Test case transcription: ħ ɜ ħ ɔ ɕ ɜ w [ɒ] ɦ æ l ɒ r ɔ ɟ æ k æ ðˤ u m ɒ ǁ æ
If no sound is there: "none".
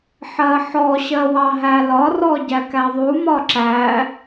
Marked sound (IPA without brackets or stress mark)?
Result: ɑ